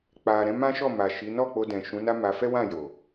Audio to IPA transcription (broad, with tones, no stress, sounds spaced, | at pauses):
k͡p a˨ ɾ ɛ̃˨˦ m ã˦ ʃ ɔ˦˨ m a˨ ʃ i˨˦ n ɔ˦˨ k͡p o˧ d ɛ̃˨ ʃ ũ˨˦ n a˦ m a˧ f ɛ˦ w ã˦˨ j o˨